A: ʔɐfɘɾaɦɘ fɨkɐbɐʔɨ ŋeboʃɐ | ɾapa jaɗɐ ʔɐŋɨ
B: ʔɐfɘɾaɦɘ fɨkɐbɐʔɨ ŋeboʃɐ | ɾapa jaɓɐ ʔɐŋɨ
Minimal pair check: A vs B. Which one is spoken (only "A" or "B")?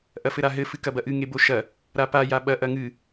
B